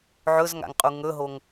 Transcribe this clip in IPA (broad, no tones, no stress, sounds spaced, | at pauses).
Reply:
ʕ ɵ z ŋ a̰ ŋ qʼ u ŋ ɵ ɦ o ŋ